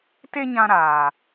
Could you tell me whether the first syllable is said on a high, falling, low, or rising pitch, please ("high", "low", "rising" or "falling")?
high